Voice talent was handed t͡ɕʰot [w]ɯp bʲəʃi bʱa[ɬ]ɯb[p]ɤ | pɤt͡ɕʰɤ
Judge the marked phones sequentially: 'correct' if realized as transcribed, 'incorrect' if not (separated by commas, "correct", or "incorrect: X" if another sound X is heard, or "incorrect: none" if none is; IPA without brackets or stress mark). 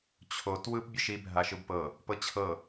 correct, incorrect: ʃ, correct